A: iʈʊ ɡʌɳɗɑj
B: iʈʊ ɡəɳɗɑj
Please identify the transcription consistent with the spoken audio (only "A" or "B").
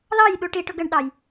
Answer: B